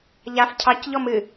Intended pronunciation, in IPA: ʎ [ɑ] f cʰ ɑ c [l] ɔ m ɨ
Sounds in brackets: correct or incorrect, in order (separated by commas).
incorrect, incorrect